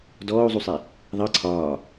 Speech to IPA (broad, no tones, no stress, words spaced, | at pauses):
dɔːu̯zˤusˤe | ðˤɤ ǀʰɒː